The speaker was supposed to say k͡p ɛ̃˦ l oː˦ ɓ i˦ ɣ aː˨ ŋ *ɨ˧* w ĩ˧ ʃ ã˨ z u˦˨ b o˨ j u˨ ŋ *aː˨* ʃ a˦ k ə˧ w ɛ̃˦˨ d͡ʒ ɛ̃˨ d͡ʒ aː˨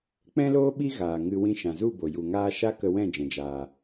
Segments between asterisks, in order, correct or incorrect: correct, incorrect

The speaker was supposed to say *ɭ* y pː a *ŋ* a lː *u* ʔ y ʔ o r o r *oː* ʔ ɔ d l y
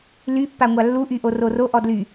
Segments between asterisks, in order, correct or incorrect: incorrect, incorrect, correct, incorrect

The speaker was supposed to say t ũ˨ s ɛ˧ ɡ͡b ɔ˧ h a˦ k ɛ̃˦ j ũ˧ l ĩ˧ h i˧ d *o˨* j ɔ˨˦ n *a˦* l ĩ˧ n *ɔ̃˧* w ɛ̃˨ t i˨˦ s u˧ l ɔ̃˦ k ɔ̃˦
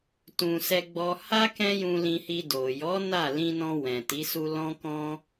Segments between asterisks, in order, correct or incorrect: correct, incorrect, correct

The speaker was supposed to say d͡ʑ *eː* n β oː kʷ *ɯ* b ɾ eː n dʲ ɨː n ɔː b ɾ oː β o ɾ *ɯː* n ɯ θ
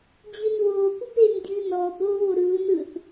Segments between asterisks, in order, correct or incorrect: incorrect, correct, correct

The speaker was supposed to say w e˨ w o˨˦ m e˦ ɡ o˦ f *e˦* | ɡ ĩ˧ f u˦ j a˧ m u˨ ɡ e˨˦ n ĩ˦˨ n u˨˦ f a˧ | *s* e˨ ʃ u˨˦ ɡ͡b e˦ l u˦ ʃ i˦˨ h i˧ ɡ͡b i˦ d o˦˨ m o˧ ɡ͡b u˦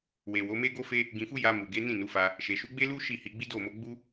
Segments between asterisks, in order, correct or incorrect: correct, incorrect

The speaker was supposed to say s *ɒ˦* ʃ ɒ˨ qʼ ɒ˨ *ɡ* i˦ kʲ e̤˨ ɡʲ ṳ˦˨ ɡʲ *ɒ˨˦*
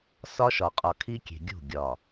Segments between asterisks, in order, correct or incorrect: correct, incorrect, incorrect

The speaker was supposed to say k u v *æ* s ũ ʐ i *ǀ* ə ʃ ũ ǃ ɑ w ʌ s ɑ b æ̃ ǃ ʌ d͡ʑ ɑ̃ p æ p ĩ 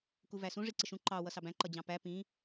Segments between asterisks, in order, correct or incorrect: correct, correct

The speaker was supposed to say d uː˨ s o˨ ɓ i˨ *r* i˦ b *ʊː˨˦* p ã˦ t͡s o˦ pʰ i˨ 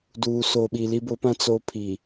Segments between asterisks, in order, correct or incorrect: incorrect, incorrect

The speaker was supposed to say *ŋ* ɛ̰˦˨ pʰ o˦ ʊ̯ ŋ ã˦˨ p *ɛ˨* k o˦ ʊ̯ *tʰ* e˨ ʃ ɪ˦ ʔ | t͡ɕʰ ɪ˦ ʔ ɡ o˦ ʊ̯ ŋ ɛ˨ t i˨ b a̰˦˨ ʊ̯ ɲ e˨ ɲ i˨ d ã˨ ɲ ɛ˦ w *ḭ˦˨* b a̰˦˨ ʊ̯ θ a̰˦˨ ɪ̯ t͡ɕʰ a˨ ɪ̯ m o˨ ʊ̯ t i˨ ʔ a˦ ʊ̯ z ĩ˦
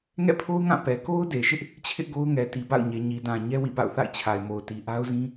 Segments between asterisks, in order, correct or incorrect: correct, correct, incorrect, correct

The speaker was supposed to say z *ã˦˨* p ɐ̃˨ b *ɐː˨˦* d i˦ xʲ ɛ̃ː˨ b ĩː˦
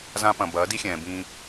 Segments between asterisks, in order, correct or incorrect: incorrect, correct

